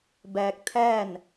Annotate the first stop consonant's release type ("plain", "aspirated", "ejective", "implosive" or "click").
plain